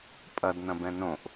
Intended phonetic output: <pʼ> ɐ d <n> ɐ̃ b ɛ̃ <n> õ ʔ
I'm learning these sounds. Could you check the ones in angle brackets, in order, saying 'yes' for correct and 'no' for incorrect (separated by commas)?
yes, yes, yes